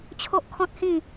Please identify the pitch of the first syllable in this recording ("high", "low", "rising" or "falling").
high